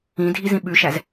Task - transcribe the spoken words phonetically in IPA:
ĩ dʱ i z ĩ ɓ ʉ ʃ æ z

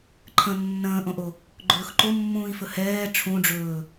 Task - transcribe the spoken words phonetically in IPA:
ǃʰ ə̃ nː ə̃ː ʔ õ ʔ o | ɡ͡ǃ ɵː x ǃ o mː ũː i̯ f ɵ h ɛː ʈ͡ʂʰ ũ ɖ͡ʐ ɵː

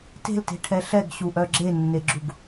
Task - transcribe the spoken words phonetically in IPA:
t e̤ l t e̤ ʈʰ ɛ ɬ ɛ ɡ ɕ u ʔ œ ɡ͡ǁ e nː e ɡ͡ǁ u ɡ

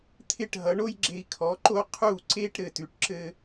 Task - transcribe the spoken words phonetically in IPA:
t̪ʰ ɪ˥˩ ʈ ɦ ʌ˩˥ ɳ o˥ j ɡ͡ǁ e˧ i̯ kʰ ɔ˩˥ ǃ o˥ qʰ u˥˩ ǀ e˥ ʈ ɾ ɘ˥˩ t ʉ˧ ʈ ǁ ɘ˥

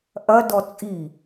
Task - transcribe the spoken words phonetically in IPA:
ʔ ɐ d ɔ t͡sʼ i

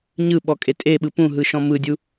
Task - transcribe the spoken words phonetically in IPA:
ɲ ɯ ɓ ɔ kʼ e tʼ e ɓ ɯ p ũ ɦ ɯ ʃ ɔ̃ m ɯ dʲ u

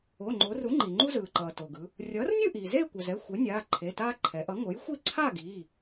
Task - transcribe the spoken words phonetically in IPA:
o˩˧˩ ŋ͡ǃ o˩˧ r u˩˥ ŋ͡ǃ i˩ ŋ͡ǃ u˦ z ɯː˩ ǃ ʌː˩ t o˩ ɡ ɯ˩˧ | rʲ ʌː˩˥ r nʲ ɯ˥˨ ʔ iː˩ z eː˥˨ kʷ ʌ˩ z ɛ˩˧˩ xʷ e˩˥ nʲ aː˩˧˩ ǃʰ e˩˧˩ t aː˦ ǃʰ ɛ˩˧ ʔ ʌ˩˥ ŋ o˩˥ j xʷ i˥˨ ǀʰ a˥˨ ɡ iː˩˧˩

